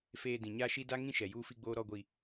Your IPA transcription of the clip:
feː˨ dĩ˨ɲaː˦ʃi˦ da˦ŋĩ˦ ʃɛ˨juː˦fi˦ɡ͡boː˦ ɾɔ˦ɡʷi˦

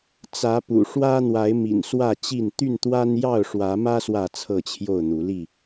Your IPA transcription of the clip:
t͡sä˨˦pṵ˨˩ ʂwä˦ n̪wa˨˦ɪ̯mḭ˨˩n swä˥˨t͡ɕi˥˨n t̪y˥˨nt̪wa˦n jɑ˥˨ʊ̯ʂwä˨˦mä˦ swä˥˨t͡sʰɤ˥˨t͡ɕʰjo˥˨ʊ̯n̪u˨˦ li˥˨

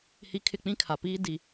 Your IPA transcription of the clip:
hi˦ kʰɪ˦˨k͡pĩ˦kʰa˨ piː˦ di˨

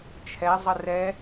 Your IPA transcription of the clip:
t͡ʃʰɛzˤə rɛ

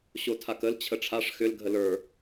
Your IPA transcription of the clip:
ɕotʰakəl t͡ɕʰəʈ͡ʂʰaʂ xʏl ɡʱələ˞

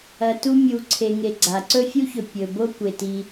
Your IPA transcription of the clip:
ɐ˨tu˦ mʲu˨ǀʰe˨ ŋe˨ɡ͡ǀa˩ǀɵ˥ fʲu˥çɵ˨ pʲɵ˩ bo˥kʷe˩ ti˨

